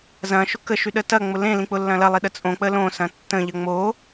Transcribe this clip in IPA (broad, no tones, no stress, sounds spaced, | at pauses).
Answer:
z ɐ̃ ʃ ʊ k ə ʃ y ɗ ə t ɐ ŋ͡m ʊ l ẽ l ĩ k͡p ʊ lː ɐ̃ l ɐ lˠ i ɗ ə t͡sʼ õ k͡p ə l õ s ɐ̃ tː ə̃ ʎ ə ŋ͡m o